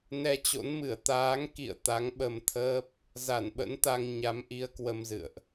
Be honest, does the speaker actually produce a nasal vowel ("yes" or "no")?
no